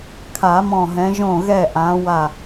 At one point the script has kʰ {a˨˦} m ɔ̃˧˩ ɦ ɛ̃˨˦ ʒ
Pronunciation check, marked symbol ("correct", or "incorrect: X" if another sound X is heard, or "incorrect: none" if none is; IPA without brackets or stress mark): incorrect: a˨˩˦